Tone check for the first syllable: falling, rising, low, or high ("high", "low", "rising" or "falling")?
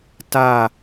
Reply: falling